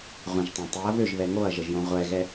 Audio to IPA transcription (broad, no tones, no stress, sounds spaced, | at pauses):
ʁʷ ə̃ ʒ tˤ ɛ̃ tˤ i ɐ̯ β ø ʒ β ɛ ŋ o ɐ̯ ʒ ə ʒ j õ ʁʷ ɛ ɣ ɛ